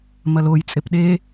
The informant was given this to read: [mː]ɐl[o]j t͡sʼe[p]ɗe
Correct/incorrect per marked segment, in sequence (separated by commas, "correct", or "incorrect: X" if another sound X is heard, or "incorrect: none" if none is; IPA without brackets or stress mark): incorrect: m, correct, correct